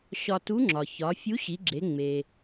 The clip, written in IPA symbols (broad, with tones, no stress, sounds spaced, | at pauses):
ɕ ɒ˧ t u˧˥ ŋ͡ǁ ɒ˩ ç ɒ˩˧ fʲ u˧˥ ɕ i˩˧ ɡ͡ǁ e˩˧ ŋ͡m e˩